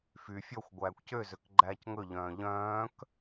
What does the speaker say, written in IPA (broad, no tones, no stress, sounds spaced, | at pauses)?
f y fʲ ɔ xʷ ɡʷ æː kʷ c ø z ø k ɡ͡ǃ æː c ŋ ɵ ʎ œ̃ː ʎ œ̃ː k